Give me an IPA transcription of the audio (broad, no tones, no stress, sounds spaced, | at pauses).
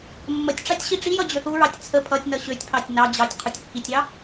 mː ə tʲ ʈ͡ʂ ɑ tʲ ɕ i ʈ͡ʂ i j ʌ d͡ʑ ø θ u ɹ ɑ tʲ t͡sʰ ə pʰ ʌ tʲ n ʌ ɕ ø tʲ pʰ ɑ tʲ n ɑ d͡ʑ ɑ tʲ qʰ u tʲ kː i tʲ ɑ